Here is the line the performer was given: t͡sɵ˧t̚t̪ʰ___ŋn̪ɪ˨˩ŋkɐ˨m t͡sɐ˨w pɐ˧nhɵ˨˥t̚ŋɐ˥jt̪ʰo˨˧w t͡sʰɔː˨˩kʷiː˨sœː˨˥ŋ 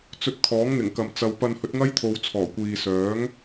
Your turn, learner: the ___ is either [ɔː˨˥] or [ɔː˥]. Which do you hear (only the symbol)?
ɔː˨˥